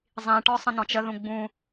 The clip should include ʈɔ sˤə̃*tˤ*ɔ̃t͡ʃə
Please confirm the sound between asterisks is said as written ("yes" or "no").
no